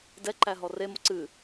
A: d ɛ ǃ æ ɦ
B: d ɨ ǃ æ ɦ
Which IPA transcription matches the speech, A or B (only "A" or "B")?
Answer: A